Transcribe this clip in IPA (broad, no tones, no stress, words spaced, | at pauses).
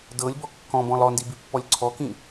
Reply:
dɤlʲbɔ kːɔ̃bɔ̃lˠ ɔndibipːɔlʲ ǀʰɔkĩ